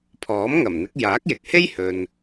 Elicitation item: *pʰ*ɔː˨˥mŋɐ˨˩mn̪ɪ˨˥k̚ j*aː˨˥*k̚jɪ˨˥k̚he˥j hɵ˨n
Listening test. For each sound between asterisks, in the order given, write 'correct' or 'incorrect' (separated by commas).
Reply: correct, correct